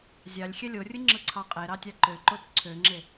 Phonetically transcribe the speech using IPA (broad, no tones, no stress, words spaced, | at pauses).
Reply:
zʲɑlʲ xʲɛlʲorʲɯ ŋ͡ǁɯǀʰɑqʼeɾɑ tʲɑǃøǃot ǀʰøŋ͡ǁe